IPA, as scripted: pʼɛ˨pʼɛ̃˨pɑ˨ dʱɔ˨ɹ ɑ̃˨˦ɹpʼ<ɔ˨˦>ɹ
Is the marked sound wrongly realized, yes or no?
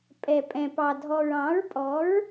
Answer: no